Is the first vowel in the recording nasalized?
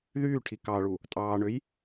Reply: no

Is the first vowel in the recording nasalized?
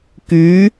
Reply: no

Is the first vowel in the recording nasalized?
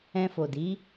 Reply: yes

